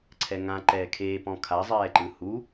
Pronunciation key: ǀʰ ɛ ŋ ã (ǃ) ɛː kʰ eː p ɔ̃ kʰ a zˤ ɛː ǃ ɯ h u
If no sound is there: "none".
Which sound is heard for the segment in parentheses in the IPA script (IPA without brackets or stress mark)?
ǃ